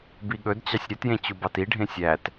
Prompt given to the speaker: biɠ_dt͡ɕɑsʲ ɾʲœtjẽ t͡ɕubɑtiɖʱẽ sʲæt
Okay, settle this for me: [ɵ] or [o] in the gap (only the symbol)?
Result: ɵ